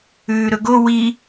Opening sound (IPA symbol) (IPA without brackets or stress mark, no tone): ʉː